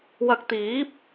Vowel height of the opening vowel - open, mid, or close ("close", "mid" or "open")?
open